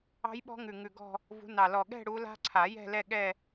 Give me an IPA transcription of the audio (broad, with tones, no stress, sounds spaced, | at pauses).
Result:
ɑ̤˦˥ j ɓ ɔ̤˦˥ ŋ ʉ˨˩ ŋ ʉ˨˩ ɡ ɔ̤˥˧ | v ṳ˨˦ n ɑ˨˩ l ɔ˨˩ ɠ ɛ̤˥˧ ɽ u˨˦ l a̤˦˥ ǀʰ a˨˩˦ j ɛ̤˥˧ l ɛ˥˧ ɠ ɛ˥˧